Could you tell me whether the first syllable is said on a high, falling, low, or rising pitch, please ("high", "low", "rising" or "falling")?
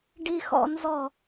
high